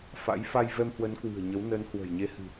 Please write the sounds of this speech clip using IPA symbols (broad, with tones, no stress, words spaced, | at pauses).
fa̰˧˥j fa˧jvɛ˧mhwə˨˦n kwɨ̤˨˩ə̯ɲə˨˦w nəː˨˦n hwə̤˨˩jɲe˧ hɨ̤˨˩